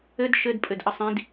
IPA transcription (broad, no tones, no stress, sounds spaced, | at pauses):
ɘ d ʃ ɘ d pʼ ɘ d ʔ ə sˤ ĩ d